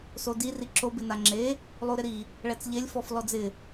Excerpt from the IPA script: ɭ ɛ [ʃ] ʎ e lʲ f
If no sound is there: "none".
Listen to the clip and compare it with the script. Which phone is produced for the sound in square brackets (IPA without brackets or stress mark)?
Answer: t͡s